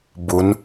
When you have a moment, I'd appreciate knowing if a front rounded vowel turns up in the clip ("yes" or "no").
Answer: no